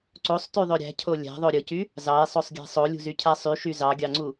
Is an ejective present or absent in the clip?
absent